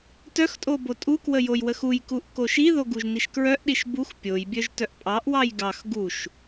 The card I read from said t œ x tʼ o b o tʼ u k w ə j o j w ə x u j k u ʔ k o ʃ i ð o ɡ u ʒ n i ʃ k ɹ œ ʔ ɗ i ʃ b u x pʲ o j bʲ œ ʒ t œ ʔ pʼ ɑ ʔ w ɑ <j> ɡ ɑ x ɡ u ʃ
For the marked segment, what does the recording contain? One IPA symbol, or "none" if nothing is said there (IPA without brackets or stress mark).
j